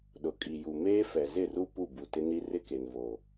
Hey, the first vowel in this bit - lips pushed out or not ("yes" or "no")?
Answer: yes